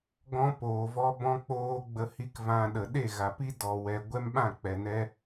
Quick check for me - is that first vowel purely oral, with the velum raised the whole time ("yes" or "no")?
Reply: no